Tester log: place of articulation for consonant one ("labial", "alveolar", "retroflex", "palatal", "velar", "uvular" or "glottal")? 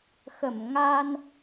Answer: velar